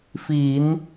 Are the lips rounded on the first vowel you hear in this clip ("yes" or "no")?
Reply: no